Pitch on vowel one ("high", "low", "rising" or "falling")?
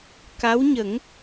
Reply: rising